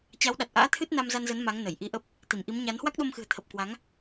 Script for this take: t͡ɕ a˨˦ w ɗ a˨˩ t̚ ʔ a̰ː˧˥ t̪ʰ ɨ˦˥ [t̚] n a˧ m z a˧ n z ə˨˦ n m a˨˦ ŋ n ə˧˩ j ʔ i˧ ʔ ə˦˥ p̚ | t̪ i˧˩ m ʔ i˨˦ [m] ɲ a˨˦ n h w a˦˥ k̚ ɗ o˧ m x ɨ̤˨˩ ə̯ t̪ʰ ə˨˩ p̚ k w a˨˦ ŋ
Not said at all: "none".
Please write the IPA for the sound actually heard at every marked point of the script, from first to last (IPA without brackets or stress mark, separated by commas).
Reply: t̚, m